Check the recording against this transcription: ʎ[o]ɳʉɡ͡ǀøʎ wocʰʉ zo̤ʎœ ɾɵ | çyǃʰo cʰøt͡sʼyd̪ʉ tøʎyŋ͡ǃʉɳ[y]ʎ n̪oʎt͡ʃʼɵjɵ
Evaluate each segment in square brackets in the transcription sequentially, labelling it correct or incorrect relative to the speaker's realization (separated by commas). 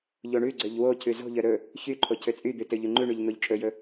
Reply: correct, correct